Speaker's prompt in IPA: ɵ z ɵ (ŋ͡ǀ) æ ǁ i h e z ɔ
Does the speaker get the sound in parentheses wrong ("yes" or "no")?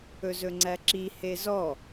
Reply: no